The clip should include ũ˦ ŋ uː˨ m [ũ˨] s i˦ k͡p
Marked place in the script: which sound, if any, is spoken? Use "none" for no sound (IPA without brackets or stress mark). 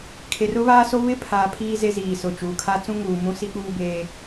ũ˦